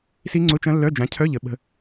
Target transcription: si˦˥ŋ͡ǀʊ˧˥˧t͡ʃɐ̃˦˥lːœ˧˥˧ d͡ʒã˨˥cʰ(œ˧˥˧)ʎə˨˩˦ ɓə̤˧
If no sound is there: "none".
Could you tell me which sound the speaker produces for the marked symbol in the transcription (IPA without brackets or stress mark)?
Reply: œ˧˥˧